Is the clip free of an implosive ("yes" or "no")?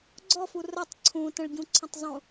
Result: yes